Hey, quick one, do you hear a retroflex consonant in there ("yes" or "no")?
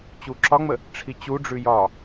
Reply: yes